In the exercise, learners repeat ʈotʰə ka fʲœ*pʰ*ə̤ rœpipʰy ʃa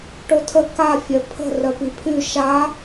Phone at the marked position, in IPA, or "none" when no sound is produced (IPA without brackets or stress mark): pʰ